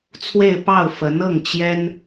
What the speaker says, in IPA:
t͡sʰ w e˥˧ ɪ̯ p ɑ˥˩ ʊ̯ f ə˧˥ n ɤ˥˩ ŋ t͡ɕ j ɛ˥ n

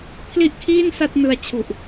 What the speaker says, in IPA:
pʰ l i˥˩ ʔ kʰ iː˥˩ n s a˥˩ t̚ n ɯ˧ a̯ t͡ɕʰ u˨˩ ʔ

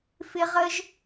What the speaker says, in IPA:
f ɪ˥ ʁ ə˥ ʒ

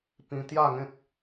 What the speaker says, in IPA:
p ĩ˧ t̪ j a˥˧ ŋ ẽ˦ k̚

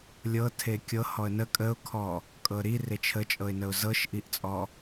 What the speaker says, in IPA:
lʲ ɤ tʰ e kʲ ɤ h ɔ ə̯ n ə kʼ ə ʊ̯ kʰ ɔ | kʼ ɤ ɾ i r e t͡ʃʰ ə t͡ʃʼ ɤ ɪ̯ n ə ʊ̯ z ɤ ʃ ʔ i ʔ t͡sʼ ɔ

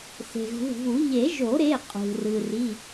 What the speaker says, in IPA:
s e̤˩ ɣ ṳ˩˧˩ v u˨˩˦ ʎ e˨˩˦ ʒ o˨˩˦ ɾ e˩˧˩ qʼ ṳ˩ r ɯ˩ r i˩˧˩

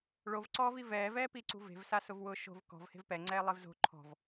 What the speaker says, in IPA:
ɭ o v ǀ ɔː v i v ɛː v ɛː p i ǀ ṳ v e̤ v s a s ʊ v w ʊː ʃ o̤ v k ɔ̤ v h e̤ v p ɛ ŋ͡ǀ ɛː lˠ e v z o̤ ǃʰ ɔ̤ v

